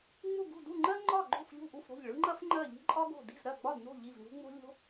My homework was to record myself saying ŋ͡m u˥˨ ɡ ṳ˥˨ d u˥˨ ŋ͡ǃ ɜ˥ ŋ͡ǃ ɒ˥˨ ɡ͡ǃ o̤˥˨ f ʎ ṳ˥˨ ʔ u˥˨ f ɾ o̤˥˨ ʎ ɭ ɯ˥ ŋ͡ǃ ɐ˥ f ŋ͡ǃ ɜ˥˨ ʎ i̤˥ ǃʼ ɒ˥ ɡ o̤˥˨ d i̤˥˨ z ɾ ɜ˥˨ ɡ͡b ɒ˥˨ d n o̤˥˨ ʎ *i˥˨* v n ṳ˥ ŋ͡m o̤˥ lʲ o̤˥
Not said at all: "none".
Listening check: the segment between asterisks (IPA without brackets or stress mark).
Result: i˥˨